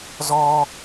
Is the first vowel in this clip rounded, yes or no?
yes